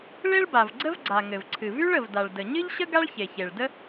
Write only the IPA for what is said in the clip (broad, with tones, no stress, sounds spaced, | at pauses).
ɭ e˥ ɭ b a˩ v ɡ͡ǀ ə˥ v ɡ͡ǀ a˩ ŋ ɘ˩ v ǀʰ ɨ˩ v y˥ ɭ ə˩ v d a˩ ɭ d ə˩ ɲ ɨ˥ ʎ ɕ ə˥ ɡ a˥ ɭ ç e˩ ç e˩ ɭ d ə˥